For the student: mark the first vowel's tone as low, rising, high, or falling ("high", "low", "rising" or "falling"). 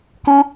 high